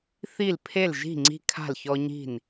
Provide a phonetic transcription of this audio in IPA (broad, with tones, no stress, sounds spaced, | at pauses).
θ i˥˩ l pʰ e˥˩ l ʒ i̤˥˩ ŋ͡ǀ i̤˦ kʰ a̤˥˩ l ç ɔ˦ ɲ i̤˥˩ n